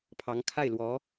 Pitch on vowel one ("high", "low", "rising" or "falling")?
rising